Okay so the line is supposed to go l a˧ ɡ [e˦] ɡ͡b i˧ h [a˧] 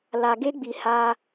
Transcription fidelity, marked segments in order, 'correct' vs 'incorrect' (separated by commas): correct, correct